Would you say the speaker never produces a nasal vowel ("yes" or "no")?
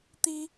yes